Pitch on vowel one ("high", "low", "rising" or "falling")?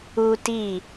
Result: high